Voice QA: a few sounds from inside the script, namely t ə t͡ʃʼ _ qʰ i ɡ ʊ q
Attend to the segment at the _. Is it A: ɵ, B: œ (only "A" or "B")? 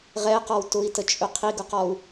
A